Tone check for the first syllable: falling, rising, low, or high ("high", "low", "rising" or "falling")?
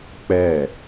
falling